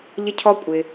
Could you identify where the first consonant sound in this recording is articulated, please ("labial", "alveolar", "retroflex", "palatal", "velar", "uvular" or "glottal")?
palatal